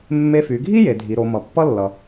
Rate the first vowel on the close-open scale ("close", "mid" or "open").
mid